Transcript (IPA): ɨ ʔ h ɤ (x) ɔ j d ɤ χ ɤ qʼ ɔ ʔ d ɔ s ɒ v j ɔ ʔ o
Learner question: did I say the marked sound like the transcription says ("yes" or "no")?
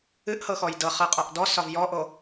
yes